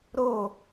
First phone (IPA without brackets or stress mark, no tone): ɾ